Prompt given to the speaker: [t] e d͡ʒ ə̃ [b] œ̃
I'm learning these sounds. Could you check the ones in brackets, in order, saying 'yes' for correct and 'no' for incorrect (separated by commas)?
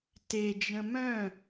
yes, no